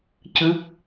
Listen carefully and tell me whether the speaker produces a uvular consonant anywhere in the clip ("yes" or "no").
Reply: no